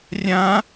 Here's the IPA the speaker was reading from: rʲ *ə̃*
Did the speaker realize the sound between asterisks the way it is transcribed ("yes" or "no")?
no